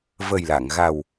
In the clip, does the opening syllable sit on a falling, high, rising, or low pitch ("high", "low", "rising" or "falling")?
low